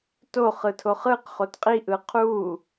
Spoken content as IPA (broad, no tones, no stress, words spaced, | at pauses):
to χɯtʰoχɯq χotqʼiʔɯ qʰu